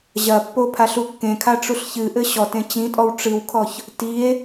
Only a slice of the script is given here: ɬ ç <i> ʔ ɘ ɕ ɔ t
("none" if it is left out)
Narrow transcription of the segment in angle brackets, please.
ɨ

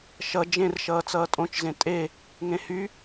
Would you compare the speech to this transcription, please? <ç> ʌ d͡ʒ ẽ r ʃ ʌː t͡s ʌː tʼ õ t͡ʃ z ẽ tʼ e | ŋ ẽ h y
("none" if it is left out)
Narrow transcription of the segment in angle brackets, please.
ʃ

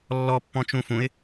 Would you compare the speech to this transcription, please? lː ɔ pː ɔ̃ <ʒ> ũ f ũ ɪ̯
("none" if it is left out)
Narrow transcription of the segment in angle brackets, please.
t͡ʃ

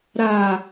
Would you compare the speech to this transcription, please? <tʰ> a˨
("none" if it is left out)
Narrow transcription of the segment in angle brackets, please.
ɾ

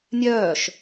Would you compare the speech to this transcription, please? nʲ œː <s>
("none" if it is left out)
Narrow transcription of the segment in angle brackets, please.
ʃ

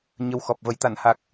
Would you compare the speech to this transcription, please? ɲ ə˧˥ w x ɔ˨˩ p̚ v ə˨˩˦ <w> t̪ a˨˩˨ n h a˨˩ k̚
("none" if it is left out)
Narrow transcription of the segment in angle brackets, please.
j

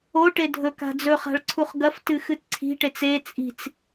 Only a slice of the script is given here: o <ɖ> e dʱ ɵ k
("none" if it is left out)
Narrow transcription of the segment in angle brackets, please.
ʈ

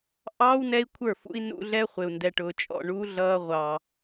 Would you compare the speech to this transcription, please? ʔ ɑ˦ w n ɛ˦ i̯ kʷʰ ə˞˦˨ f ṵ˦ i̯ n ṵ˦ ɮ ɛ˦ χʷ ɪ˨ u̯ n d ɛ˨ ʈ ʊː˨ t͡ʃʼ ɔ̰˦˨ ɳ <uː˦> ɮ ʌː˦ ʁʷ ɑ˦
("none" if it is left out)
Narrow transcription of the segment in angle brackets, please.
u˦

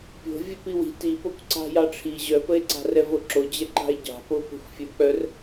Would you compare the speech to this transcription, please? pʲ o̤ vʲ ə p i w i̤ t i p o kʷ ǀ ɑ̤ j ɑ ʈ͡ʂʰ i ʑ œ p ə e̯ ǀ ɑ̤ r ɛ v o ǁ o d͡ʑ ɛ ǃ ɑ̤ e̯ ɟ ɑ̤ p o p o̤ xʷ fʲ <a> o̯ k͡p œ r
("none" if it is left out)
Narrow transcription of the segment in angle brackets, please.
ə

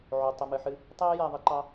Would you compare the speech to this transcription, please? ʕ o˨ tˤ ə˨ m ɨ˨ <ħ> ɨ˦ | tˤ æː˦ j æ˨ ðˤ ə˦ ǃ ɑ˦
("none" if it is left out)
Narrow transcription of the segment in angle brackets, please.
ħ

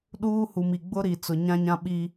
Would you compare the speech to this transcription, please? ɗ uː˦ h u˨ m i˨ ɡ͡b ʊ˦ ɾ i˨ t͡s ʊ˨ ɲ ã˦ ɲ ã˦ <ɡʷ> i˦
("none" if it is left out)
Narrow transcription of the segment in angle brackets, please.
ɓ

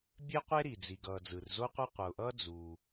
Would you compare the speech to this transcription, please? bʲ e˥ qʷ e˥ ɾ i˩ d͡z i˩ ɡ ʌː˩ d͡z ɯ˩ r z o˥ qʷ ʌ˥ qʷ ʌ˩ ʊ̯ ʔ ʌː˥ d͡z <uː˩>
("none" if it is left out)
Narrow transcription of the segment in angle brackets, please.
uː˩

